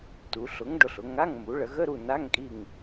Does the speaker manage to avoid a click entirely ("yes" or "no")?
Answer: yes